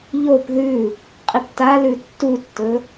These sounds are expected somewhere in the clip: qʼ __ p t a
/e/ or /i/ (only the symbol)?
i